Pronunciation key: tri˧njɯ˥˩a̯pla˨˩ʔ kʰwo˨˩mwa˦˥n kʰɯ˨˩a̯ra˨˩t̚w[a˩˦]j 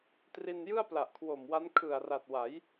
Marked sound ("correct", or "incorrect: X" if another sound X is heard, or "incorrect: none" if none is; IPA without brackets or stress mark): correct